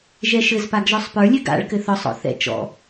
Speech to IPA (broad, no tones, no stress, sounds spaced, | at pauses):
ʒ ɛ ʃ ɘ z p a ɡ ʒ ɔ sˤ p ə˞ lʲ ɘ ɡ a̰ ɭ k ɘ θ ɒ sˤ ɔ̰ θ ɛ̰ t͡ʃ ɔ̰